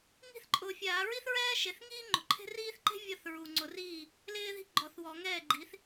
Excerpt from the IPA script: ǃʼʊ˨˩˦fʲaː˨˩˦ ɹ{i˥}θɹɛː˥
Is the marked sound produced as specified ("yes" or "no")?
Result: yes